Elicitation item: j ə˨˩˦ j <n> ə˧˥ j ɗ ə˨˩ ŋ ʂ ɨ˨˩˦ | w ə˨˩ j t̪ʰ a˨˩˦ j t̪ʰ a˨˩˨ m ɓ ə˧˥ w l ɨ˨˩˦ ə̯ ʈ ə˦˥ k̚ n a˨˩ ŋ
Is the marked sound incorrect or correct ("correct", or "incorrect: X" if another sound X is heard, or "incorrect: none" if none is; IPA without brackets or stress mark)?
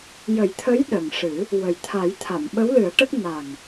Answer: incorrect: t̪ʰ